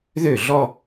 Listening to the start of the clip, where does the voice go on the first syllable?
falling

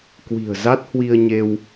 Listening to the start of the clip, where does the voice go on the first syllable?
low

